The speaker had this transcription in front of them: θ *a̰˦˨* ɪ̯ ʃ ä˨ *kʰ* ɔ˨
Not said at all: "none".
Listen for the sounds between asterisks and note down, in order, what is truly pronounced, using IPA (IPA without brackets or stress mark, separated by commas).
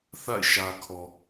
a̰˦˨, kʰ